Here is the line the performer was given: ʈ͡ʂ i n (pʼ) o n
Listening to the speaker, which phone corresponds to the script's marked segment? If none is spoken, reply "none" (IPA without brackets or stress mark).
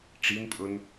pʼ